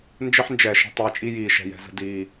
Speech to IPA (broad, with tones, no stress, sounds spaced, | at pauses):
n d͡ʒ ɘ˦ ħ n d͡ʒ ɛː˨ ʃ ə̤˧ tˤ ɛː˧ t͡ʃʼ i˦ j iː˨ ʃ ɛ̤˨ j ɛ̤˧ z ə̤˧ d iː˨